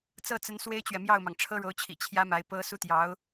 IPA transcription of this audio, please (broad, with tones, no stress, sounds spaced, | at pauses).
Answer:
t͡s ɤ˥˩ t͡s ə˧˥ n s w e˥ ɪ̯ t͡ɕ ɥ ɛ˨ m j ɑ˥˩ ʊ̯ m ɑ˩ ŋ ʈ͡ʂʰ ɤ˥ ɻ o˧˥ ʊ̯ t͡ɕʰ ḭ˨˩ t͡ɕʰ j ä˥ m a˧˥ ɪ̯ p ɤ˥ s u˥˩ t̪ j ɑ˧˥ ʊ̯